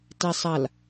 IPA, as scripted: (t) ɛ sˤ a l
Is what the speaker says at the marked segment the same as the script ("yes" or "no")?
yes